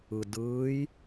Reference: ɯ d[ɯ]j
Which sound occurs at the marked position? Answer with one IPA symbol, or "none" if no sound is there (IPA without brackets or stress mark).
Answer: ɯː